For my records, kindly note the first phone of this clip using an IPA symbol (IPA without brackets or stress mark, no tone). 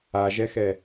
a